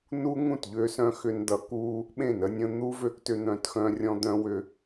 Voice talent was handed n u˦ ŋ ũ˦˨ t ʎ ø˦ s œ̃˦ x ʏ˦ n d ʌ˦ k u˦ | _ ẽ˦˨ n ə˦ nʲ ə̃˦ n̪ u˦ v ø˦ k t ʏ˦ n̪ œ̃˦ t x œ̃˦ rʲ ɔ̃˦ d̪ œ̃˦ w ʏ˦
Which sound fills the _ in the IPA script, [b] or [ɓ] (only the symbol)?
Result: ɓ